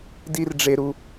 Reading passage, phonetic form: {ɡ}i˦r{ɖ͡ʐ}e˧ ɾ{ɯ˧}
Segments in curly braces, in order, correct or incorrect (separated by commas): incorrect, correct, incorrect